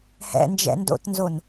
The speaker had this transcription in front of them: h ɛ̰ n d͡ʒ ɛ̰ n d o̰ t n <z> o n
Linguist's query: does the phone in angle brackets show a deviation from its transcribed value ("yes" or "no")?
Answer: no